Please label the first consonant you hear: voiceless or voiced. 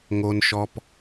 voiced